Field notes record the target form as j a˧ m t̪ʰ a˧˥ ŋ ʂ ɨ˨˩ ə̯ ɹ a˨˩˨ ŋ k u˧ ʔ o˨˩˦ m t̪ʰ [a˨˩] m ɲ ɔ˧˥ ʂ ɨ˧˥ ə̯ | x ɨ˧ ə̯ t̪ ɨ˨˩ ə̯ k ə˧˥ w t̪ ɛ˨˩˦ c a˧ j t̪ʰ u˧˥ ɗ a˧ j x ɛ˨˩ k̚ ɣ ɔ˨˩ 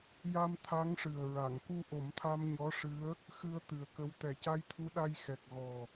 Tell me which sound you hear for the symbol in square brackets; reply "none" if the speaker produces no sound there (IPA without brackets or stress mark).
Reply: a˧